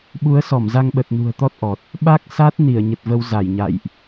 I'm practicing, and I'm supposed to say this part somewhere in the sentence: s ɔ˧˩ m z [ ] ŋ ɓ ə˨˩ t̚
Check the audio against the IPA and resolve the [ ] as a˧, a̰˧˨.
a˧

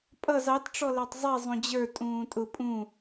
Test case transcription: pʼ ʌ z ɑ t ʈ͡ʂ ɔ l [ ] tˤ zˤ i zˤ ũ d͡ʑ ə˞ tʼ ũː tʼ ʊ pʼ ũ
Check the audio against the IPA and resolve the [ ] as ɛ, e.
ɛ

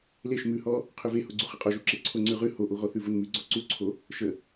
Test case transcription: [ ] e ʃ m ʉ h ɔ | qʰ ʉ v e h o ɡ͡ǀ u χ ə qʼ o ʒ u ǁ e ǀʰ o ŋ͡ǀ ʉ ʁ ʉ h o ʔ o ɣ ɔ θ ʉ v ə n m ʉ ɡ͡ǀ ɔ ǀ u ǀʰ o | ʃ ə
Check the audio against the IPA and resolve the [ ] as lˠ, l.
l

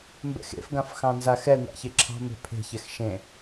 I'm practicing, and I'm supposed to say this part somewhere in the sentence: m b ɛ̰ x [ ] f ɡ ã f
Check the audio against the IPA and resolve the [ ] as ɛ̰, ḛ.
ḛ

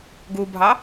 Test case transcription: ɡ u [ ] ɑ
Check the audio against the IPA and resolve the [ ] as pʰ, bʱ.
bʱ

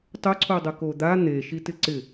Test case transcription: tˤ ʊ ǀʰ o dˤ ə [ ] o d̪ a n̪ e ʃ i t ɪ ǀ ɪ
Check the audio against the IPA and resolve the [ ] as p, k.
k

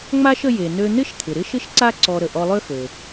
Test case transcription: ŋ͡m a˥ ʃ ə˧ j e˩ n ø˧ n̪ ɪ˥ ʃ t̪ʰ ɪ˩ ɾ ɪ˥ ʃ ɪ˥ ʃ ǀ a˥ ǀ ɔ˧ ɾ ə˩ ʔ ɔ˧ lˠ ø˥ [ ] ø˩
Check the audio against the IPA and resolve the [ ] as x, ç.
x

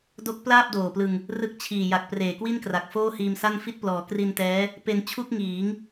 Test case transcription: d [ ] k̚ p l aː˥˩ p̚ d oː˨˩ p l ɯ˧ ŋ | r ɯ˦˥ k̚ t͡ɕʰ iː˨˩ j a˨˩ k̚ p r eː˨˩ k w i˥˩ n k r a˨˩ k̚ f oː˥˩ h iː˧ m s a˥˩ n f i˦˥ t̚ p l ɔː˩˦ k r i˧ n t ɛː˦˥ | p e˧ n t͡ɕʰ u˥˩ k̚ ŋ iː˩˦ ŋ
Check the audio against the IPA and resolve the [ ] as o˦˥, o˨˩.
o˦˥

